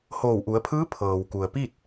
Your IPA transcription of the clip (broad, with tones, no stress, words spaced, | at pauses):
hoː˧˩wʔu˩˧ə̯ pʰɯː˧˥ pʰɤː˩wku˩ə̯pi˥˨t̚